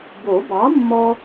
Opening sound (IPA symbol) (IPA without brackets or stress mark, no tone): b